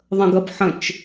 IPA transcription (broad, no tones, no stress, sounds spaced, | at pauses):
ðˤ ə̃ ɡ ɐ b ħ ə̃ t͡ʃ